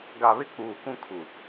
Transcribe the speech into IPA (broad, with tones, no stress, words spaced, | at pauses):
ɡa˨βɪ˦ k͡puː˨kũ˦kʰu˨